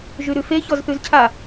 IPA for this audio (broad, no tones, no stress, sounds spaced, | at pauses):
ʒ ʉ ɾ ʉ f e ç ɔ z θ ʉ z cʰ a